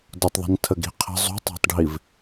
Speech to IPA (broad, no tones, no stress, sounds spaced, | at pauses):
d ʊ tˤ ðˤ i̤ n tʰ ə ɡ i̤ qʰ ə̤ zˤ ṳ tˤ ɑ̤ tˤ ɖʱ i v